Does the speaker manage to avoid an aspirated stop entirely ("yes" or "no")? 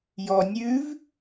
yes